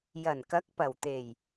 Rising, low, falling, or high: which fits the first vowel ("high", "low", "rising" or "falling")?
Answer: low